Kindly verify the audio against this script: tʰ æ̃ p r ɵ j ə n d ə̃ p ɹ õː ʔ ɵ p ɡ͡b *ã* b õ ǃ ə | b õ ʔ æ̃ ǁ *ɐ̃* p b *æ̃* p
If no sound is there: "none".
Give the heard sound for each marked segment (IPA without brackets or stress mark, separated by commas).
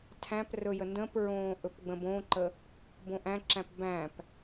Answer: ə̃, æ̃, æ̃